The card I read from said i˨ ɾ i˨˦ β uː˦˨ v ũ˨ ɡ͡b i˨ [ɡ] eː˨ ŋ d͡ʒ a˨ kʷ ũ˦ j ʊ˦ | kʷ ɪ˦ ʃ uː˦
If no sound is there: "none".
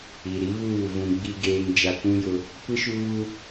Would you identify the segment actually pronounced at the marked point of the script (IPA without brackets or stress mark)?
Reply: ɡ